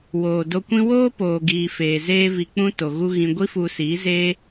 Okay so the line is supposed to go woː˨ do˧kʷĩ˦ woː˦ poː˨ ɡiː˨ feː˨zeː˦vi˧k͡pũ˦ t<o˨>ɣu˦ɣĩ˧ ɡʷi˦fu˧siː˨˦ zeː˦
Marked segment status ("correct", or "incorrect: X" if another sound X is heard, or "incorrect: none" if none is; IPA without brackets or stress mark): correct